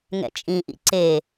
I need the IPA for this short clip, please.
ŋɛ̰t͡ʃʼĩʔḭ ǀe

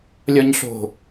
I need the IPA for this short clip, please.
lʲɒɲɬo̤

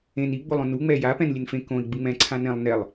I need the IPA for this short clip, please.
ẽn i ɡ͡bolˠõnu ŋ͡mɛja pɛ̃nlʲenfẽ kõi̯ ɡ͡bɯŋ͡mɛ̃ ǀʰãnɛ̃lˠ nɛlˠ

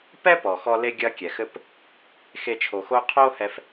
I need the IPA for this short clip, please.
pɛ˥pɔ˩xɔ˧ le˥ɡʲɐ˥kʲɛ˩xɘ˥p | xe˧t͡ʃʰo˩xo˥ qʰo˥hɛ˧f

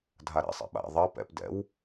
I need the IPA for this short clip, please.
dʱaɾɛ̰ sˤɛ̰ɓa̰ ðˤɜ pɛ̰p dɛ̰w

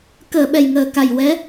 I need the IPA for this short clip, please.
kəː˨˩˨ɓɛ˨˩jŋəː˨˩ka˨˩j wɛ˧˥

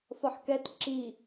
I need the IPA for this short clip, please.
fɒħkɛt ǁi

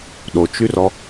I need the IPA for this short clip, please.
ɗot͡ʃyrɔ

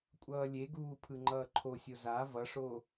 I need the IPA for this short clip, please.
kʷʼʌːlʲeɡuː pʰɯŋ͡ǃʌːǃʰosʲo za vʌʂo

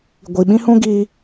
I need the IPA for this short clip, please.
ɡʷi˨ɓĩ˦hũ˦ ɡiː˦

